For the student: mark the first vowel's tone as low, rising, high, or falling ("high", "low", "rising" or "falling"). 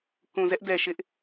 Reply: low